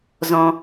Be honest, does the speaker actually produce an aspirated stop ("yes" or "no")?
no